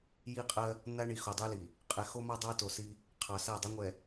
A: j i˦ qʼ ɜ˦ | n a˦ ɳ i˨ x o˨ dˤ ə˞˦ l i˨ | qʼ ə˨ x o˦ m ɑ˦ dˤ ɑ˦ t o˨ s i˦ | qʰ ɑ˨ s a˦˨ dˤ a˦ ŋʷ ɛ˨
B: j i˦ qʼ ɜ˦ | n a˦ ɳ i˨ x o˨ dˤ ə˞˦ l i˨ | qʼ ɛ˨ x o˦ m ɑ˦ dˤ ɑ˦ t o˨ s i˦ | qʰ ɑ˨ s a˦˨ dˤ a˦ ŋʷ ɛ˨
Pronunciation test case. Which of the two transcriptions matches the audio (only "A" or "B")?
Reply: B